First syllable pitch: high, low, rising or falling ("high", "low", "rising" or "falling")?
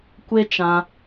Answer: high